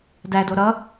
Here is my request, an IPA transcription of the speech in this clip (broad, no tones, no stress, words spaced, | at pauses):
dædo ɾʌ